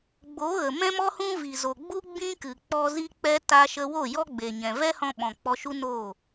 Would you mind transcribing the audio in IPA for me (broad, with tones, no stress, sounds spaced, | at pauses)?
ɡ͡b o˨˦ ɣ ə˨ m ɛ̃˦ m ɔ˦ h ũ˦ v i˨ z o˨ ɡ͡b u˦ ɡ͡b ĩ˦ k ɨ˨ k͡p ɔ˦ z i˦ k͡p ɛ˦ t a˦ ʃ ə˦ w o˦˨ j ɔ˦ ɡ͡b e˨ ɲ ɛ̃˨ v ɛ˦ h ɔ̃˧ ɓ ɔ̃˨ k͡p ɔ˧ ʃ u˦ n oː˦˨